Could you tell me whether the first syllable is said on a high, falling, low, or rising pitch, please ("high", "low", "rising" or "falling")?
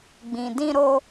low